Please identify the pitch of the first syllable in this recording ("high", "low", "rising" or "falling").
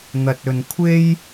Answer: low